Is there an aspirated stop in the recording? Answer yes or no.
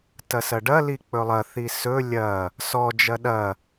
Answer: no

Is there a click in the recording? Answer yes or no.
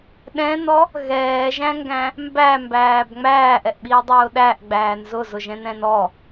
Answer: no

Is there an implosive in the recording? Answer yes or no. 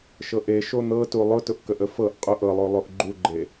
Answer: no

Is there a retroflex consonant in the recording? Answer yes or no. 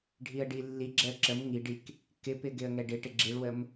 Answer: yes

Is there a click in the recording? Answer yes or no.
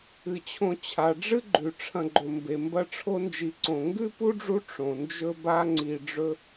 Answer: yes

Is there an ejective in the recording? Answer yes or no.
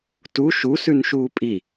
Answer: yes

